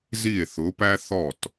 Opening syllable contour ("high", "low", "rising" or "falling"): falling